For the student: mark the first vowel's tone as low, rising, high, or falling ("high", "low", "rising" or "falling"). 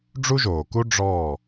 high